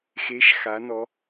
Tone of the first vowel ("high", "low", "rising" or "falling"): rising